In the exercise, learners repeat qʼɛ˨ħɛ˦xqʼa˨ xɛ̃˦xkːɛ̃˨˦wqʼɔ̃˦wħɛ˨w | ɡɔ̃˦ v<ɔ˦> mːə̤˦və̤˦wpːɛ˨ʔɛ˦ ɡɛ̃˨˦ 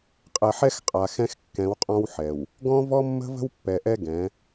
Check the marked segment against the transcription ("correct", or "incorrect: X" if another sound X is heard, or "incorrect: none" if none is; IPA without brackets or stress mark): correct